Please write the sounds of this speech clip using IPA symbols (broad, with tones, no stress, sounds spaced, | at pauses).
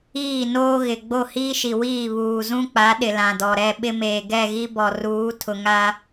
iː˦˨ n oː˦ ɣ ɪ˨ ɡ͡b o˦˨ h iː˦ ʃ i˨ w iː˦˨ β uː˨ z ũ˦ k͡p a˨˦ ɗ ɪ˨ l ã˨ d ɔ˨ ɾ ɛ˦˨ ɓ ɪ˦ m eː˨ ɡ ɛ˦˨ ɣ i˦ b ɔ˨ r uː˨˦ tʰ ʊ˨ ŋ a˦